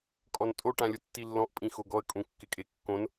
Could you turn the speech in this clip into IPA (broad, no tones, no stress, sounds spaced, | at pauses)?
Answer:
kʼ ɔ n tʼ o ʈ ã lʲ ʊ tː i lː ɔ̃ ʔ pʼ ĩ x o ɡ ɔ ə̯ kʼ ũ kː ɪ kʼ e kː õ n